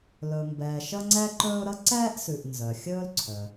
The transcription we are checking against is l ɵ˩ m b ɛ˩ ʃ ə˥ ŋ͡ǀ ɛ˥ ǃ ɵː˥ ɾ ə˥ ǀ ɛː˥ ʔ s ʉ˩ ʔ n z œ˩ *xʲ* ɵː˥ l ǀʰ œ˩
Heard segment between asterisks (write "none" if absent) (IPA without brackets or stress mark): xʲ